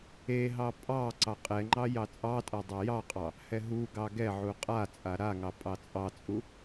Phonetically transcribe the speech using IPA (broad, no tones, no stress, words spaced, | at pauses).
eɦɑ pʼɑ ǀɑqʼɛŋ͡ǃɑ jɑt͡sʼɑtʼa dˤajɑqʼɑ | hɛɦuɡɑ ɡɛʕu qʼa t͡sʼaɾaŋɑ pʼɑt͡sʼɑt͡sʼu